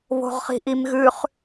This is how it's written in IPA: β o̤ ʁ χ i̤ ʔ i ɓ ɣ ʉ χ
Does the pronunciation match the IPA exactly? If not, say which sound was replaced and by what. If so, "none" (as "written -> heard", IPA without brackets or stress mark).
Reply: ɓ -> m